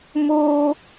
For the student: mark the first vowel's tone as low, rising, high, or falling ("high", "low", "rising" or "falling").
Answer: high